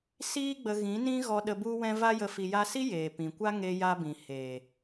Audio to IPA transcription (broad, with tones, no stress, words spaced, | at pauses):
siː˦ɡ͡bə˧ɣĩ˨˦ nĩ˦ɣɔ˧ ɗə˧ bu˧wɛ̃˧ va˦jə˧ fi˧ja˦ si˦ jeː˨pĩ˨kʷa˦ ŋe˧ja˧bĩ˨ heː˨